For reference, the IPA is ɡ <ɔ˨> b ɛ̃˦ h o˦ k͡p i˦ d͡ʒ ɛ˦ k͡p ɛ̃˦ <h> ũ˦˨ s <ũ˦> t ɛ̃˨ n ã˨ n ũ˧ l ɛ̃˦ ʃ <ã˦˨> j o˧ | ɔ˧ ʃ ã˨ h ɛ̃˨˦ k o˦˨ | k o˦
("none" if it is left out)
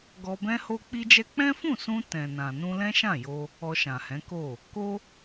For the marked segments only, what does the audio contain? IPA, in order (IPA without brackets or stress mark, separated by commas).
ɔ˧, f, ũ˧, ã˦˨